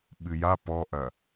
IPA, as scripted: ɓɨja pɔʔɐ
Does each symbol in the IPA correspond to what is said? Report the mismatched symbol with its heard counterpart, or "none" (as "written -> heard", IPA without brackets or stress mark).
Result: none